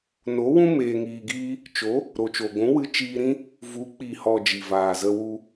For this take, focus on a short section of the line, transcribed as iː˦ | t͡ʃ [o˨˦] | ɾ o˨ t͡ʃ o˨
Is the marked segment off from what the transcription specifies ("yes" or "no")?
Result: no